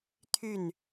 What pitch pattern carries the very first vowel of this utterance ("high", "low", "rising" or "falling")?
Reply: falling